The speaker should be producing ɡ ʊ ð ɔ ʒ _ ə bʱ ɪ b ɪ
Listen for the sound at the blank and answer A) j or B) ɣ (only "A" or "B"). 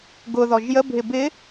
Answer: A